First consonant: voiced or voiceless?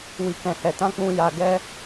voiced